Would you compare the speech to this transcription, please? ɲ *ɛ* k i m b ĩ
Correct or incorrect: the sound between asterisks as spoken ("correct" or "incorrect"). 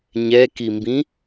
correct